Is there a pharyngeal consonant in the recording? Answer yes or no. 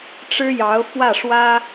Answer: no